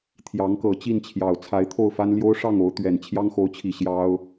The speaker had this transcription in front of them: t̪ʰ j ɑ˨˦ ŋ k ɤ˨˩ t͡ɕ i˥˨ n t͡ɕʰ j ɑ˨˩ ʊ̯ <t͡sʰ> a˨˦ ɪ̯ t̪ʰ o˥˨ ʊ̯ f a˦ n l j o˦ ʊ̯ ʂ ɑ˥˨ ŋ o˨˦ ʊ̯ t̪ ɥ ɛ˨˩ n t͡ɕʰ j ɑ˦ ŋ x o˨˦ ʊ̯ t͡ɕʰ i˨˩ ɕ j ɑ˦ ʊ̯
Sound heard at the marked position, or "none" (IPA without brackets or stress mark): t͡sʰ